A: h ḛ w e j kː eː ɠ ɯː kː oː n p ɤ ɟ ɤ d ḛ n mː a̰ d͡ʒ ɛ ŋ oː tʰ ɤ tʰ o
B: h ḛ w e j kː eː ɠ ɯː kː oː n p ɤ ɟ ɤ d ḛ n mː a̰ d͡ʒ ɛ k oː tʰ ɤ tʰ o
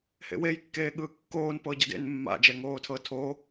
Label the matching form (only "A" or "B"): A